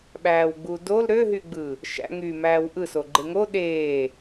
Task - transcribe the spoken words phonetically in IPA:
ɓ æː w ɡ͡b u d o l ɾ ø ɦ y ɡ͡b ɯ | ʃ æ̰ ŋ y m æː w ʔ ɯ s o ɡ͡ǃ e ŋ o ɗ eː

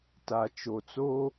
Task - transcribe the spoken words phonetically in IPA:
t a˨ t͡ʃ o˨ t͡s o˦

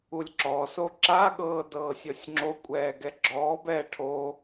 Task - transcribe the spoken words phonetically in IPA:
u lʲ ǁ ɔ s o ǁ a ɠ ɤː d ɤː sʲ ɔ sʲ ŋ͡ǁ o kʷʼ ɛː ɡ ɛ ɡ͡ǁ ɔː b ɛː ʈʰ o

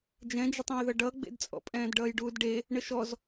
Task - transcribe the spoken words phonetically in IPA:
d͡ʒ ɛ̃ d͡ʒ ə tˤ ɛ̃ j ð ʌ ɖ ʌ ɡ͡b ḛ d t͡sʼ ɔ̰ pʼ ɛ̃ː d ɖ ʌː j ɖ uː d ɖ e | ɳ ə ʃ ɔ z

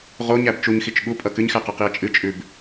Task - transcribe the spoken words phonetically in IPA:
ʁ o ɲ æ b t͡ʃ u ɲ x i t͡ʃ ɠ u pʼ ʌ k ɨ ɲ x æ q ʌ q i ɐ̯ t͡ʃʼ ɨ t͡ʃʼ ʉ b

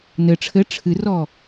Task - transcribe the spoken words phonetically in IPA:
n ɘ ʈ͡ʂʰ ɘ ʈ͡ʂʰ ɨ r ɔ

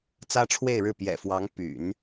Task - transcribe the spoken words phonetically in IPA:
t͡s ä˥ ʈ͡ʂʰ w e˥˧ ɪ̯ ɻ ɻ̩˥˩ p j ɛ̰˨˩ f w ɑ˧˥ ŋ p y̰˨˩˦ n

